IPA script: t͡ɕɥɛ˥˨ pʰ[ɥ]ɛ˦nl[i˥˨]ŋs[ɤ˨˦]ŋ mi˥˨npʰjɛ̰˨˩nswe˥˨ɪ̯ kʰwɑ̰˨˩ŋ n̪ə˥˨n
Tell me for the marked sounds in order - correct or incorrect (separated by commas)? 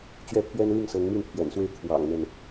correct, correct, correct